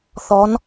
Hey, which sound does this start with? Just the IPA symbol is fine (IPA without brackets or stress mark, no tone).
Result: θ